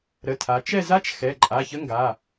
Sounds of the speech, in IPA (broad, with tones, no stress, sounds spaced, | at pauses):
ɾ ə˩˧˩ tʰ a˩˧ t͡ʃ ɛ˦˨ z a˦˥ t͡ʃ x ɛ˩˧˩ ǃʼ a˩˧˩ ç ə˦˥ ŋ ɡ a˩˧˩